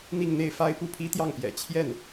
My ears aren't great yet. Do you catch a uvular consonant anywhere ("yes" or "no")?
no